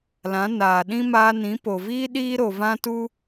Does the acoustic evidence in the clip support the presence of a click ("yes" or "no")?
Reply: no